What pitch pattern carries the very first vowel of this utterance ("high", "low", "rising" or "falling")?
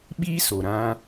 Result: high